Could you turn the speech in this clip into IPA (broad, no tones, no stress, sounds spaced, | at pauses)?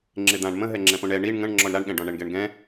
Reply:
ŋ͡ǁ ɪ d̪ ã ɳ m ə̃ ɦ ɛ ŋ͡ǁ ɛ̃ p õ ɳ ɛ ɳ i ɳ ŋ ə̃ ɳ ŋ͡ǁ ɔ ɳ ɾ a ɳ ɠ ɛ̃ ɖ ɔ̃ ɳ ɛ ɳ ɡ ɛ ɳ ɡ ɛ̃